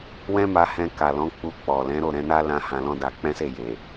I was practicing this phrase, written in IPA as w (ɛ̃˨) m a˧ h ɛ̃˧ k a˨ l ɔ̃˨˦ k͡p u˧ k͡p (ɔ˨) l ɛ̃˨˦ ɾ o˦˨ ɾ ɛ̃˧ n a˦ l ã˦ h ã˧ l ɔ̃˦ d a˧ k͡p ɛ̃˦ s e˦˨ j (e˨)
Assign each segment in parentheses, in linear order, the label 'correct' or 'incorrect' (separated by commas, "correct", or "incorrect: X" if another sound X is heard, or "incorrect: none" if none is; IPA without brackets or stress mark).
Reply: incorrect: ɛ̃˦, correct, correct